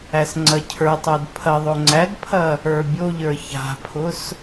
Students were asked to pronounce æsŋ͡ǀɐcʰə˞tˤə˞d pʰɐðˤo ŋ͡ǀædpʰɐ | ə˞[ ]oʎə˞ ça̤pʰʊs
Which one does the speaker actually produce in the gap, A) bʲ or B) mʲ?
A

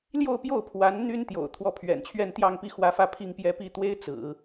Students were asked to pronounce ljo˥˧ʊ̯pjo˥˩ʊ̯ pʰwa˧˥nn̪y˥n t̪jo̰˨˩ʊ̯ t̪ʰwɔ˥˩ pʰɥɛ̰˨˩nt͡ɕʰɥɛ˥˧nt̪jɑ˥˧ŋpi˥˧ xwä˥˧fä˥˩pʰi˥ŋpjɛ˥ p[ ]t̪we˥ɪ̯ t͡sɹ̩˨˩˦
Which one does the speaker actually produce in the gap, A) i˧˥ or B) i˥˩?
B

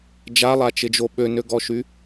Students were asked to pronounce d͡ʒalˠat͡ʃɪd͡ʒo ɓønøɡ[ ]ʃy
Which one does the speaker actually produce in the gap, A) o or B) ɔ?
B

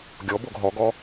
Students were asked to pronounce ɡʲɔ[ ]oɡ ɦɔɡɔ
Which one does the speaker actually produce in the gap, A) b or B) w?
A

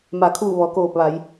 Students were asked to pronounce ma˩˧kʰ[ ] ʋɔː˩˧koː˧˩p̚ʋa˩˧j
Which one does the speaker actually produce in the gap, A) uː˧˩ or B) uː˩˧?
A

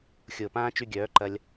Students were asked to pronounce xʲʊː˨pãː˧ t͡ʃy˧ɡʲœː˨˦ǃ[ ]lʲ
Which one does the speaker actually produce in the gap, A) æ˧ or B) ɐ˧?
B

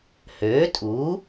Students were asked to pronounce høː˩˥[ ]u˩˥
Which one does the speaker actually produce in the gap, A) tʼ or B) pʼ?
A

